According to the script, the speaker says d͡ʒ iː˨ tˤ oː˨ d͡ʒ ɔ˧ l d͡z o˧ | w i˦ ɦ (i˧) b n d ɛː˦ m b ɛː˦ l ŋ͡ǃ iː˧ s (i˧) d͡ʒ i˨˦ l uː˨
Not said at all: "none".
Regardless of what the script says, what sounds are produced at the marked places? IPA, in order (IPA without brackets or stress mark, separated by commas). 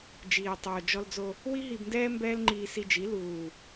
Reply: i˧, i˧